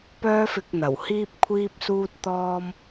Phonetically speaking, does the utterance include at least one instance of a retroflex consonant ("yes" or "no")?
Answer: no